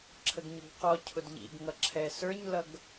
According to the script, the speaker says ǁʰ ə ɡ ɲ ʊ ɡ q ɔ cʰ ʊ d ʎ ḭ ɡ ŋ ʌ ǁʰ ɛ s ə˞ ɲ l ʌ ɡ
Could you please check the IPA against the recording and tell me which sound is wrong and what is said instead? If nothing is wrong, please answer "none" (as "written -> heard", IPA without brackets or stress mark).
none